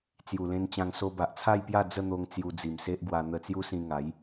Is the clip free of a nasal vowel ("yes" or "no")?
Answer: no